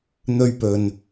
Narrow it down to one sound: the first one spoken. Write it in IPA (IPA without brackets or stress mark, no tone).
n̪